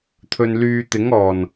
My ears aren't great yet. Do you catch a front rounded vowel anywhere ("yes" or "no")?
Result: yes